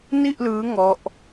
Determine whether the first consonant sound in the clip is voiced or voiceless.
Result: voiced